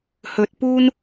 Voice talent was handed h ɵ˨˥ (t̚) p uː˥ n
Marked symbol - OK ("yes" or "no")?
yes